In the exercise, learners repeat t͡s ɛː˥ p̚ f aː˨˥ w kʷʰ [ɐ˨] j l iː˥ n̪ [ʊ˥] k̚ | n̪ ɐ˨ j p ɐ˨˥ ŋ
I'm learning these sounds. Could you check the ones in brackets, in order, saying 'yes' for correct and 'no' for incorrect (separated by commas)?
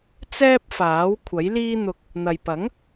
no, no